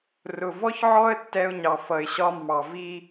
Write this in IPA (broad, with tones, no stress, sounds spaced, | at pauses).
r ʊ˩ v ɔ˥ ç ʕ ɔ˥ ə̯ tː ɛ˧ ʊ̯ ɲ ɑ˩ f ʌ˩ ɪ̯ ɕ ɒ˧ mː ɑ˩ v i˧